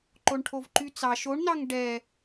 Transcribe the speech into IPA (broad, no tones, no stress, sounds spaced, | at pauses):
ǃ o ɳ ʈʰ o v ǃ y t͡s ɑ ʃ o ɳ n ɑ ŋ ɖ ɛ